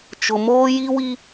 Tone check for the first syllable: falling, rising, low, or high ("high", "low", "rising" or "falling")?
low